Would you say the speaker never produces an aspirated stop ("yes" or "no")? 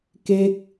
yes